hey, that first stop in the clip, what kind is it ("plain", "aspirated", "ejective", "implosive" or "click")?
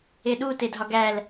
implosive